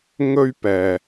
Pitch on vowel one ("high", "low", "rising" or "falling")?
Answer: high